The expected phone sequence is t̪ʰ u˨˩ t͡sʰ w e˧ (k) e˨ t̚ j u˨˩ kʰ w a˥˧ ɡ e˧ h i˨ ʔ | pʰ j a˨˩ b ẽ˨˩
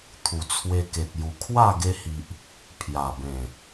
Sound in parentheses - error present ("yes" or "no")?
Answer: no